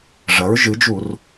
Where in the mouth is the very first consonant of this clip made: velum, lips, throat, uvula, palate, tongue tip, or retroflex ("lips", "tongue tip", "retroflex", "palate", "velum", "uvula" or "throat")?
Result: retroflex